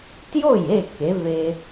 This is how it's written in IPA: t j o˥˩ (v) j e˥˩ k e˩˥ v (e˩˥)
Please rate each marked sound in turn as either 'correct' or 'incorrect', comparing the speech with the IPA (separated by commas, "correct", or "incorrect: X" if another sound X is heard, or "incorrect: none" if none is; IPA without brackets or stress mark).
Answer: incorrect: none, incorrect: e˧